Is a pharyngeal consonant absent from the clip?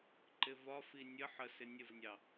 no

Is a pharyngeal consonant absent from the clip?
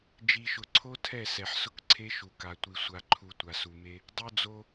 no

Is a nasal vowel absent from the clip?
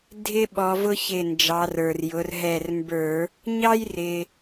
yes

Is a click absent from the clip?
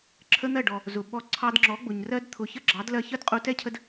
no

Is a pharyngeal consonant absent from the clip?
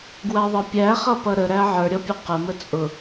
no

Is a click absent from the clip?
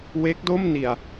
yes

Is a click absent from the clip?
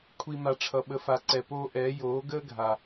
no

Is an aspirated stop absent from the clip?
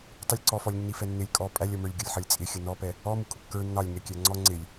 yes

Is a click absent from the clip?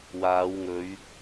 yes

